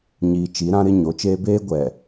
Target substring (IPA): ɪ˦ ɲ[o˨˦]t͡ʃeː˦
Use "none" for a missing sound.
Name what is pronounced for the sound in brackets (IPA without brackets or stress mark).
o˨˦